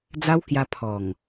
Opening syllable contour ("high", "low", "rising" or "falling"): high